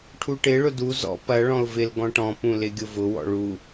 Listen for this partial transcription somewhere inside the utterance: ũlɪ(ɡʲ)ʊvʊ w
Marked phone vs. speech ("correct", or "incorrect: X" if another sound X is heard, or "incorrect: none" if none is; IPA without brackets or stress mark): correct